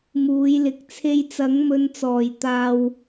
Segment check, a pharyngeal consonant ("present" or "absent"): absent